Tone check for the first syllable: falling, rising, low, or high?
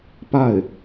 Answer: falling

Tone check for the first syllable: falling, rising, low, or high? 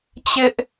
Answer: high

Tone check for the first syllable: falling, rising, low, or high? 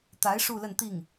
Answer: rising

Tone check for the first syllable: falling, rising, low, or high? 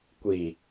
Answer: low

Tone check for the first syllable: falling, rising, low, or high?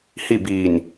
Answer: falling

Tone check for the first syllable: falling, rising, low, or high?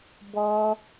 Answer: high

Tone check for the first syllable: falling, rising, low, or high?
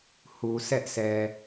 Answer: low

